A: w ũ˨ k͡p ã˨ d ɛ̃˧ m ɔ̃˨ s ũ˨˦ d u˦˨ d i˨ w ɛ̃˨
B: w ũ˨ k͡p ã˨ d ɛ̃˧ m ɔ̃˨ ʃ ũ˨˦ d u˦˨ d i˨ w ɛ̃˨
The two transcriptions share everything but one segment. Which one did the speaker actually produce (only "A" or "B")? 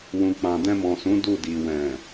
A